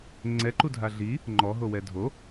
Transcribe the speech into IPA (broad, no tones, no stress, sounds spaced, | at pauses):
ŋ͡ǀ ɛ ǃ u dʱ a ɮ i | ŋ͡ǃ ɔ ɦ o w ɛ dʱ o